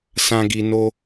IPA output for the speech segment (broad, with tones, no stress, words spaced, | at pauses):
sã˦ɡi˧no˦